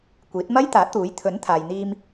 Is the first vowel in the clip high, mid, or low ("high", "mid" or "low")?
high